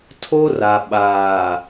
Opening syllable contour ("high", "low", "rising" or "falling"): high